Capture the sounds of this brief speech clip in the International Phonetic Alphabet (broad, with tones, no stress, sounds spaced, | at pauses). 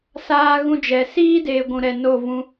s aː˧ ɣ ũ˧ d͡ʒ ɛ˨ s iː˦ d eː˨ ɡʷ ũ˨ ɾ ɛ˨ n o˦˨ v ũ˧